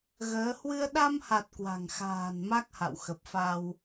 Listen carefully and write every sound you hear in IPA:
ɣ əː˨˦ h w ɨ˧ ə̯ ɗ a˧ m h a˨˩ t̚ k w a̤˨˩ ŋ x a̤ː˨˩ n m a˦˥ k̚ h a̰˧˨ w x ə˨˩ p̚ f a˧ w

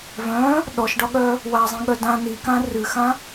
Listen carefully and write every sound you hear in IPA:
v œ̃ | ɗ ɔ ʃ ɖ ɒ ɠ œ | w a zˤ ĩ ɠ œ d ã n i k ã r ɨ x ã

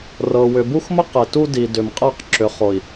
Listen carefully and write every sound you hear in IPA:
r ɤ˨ w ʏ˨ b u˦ x m ə˦ q e˨ t u˦ d i˨ d ʏ˨ m qʼ e˦˨ q ǁ ʏ˨ χ o˨ i̯

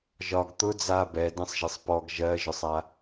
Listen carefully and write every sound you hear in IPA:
ʒ ɒ ɡ t̪ ʊ d͡z a b ɛ d ẽ sˤ ʒ e sˤ p ɔ ɡ ʒ ɜ ʒ ʊ sˤ a

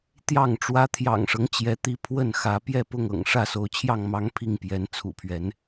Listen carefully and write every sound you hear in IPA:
t̪ j ɑ˥˨ ŋ ʈ͡ʂ w ä˦ t̪ʰ j ɑ̰˨˩ ŋ ʂ ɤ˦ ŋ t͡ɕ j ɛ˨˦ t̪ i˨˦ pʰ w ə˥˨ n x ä˨˦ p j ɛ˥˨ p ʊ˥˨ ŋ ɤ̰˨˩ ŋ ʂ ä˥˨ s o˨˦ ʊ̯ t͡ɕʰ j ɑ˥˨ ŋ m ɑ˦ ŋ pʰ i˥˨ ŋ p j ɛ˨˦ n t͡sʰ ṵ˨˩ pʰ ɥ ɛ˨˦ n

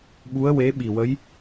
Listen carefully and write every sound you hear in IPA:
ɓ u˧˥ ə̯ w e˧˥ ɓ i˨˩ w ə˧˥ j

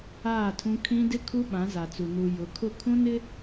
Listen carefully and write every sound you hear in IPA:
aː˦˨ tʰ ũ˦ kʰ ĩ˦ d ɪ˦ kʰ u˦ ɓ ã˨˦ z a˨ t͡s u˨ n u˨ j ʊ˨˦ kʰ ʊ˦˨ kʰ ũ˦ n ɪ˦

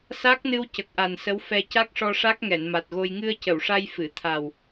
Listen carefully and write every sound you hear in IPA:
s a˦˥ k̚ n ɨ˧ w c ə˨˩ k̚ ʔ a˨˩ n s ə˧˥ w f ɛ˧ c a˦˥ k̚ ʂ ɔ˧ ʂ a˦˥ k̚ ŋ ɛ˨˩˨ n m a˨˩ t̚ ɣ o˧ j ŋ ɨ˧ ə̯ c ə˨˩˨ w ʂ a˧ j f ɨ˨˩˨ t̪ʰ a˨˩ w

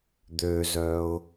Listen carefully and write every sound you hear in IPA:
d̪ ø z œ ʊ̯

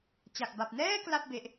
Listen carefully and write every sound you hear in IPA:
t͡ɕ a˨˩ k̚ b a˨˩ p̚ n ɛː˥˩ k l a˥˩ p̚ b e˦˥ ʔ

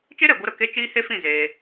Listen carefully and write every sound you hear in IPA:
t͡ʃ e˦ ɾ ɛ˨ ɡʷ ɨ˧ ɾ ə˨ k e˦ t͡ʃ iː˦ h e˦ f ĩ˦˨ z eː˧

